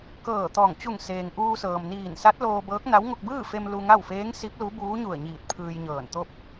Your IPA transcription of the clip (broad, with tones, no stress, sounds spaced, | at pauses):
k ɤː˧˩ t̪ ɔː˧˩ ŋ t͡ɕ u˧˩ ŋ s eː˩ ŋ ʔ uː˧ s ɤː˩ m n iː˧˩ n s a˧˥ t̚ l oː˧ b ɤː˧˥ k̚ n a˧˥ w ŋ o˧ k̚ b ɯː˥˨ f e˧ m l u˧ ŋ a˥˨ w f eː˧˥ ŋ s i˧˥ p̚ l u˧˥ b uː˧˥ ɲ u˧˩ ə̯ ɲ iː˧˩ t̚ pʰ ɯː˧ j ɲ ɤː˧˩ n t̪ o˥˨ p̚